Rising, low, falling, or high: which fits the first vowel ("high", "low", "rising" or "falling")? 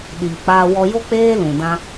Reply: low